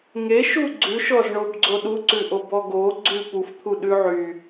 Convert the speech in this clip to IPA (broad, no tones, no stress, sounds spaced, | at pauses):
ŋ e ʃ u ɡ͡ǀ ʉ ʃ ɔ z ɳ o b ɡ͡ǀ o ɗ u ǀ ʉ ʔ o b ɔ ɡ o ɡ͡ǀ ʉ p u f t̪ʰ u ɗ ʉ ʕ y